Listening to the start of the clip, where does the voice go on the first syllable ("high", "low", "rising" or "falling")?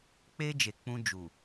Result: high